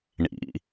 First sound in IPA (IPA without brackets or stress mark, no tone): ɳ